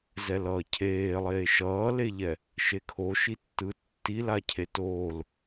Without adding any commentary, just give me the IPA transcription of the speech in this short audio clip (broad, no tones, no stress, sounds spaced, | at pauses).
z ɛ l ʌː cʰ eː lˠ eː ʃ ʌː l e ʎ ɛ | ʃ e kʰ o ʃ i tː ɯ tː i l a cʰ e t oː l